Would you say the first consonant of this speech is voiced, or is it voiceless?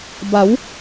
voiced